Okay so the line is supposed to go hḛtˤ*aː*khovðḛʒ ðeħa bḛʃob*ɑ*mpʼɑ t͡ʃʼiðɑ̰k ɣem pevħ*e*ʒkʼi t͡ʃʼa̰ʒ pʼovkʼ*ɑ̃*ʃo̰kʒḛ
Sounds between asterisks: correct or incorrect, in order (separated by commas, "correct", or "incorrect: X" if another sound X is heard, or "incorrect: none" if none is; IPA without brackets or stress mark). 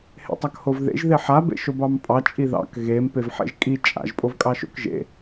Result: incorrect: a, correct, incorrect: ḛ, incorrect: ɑ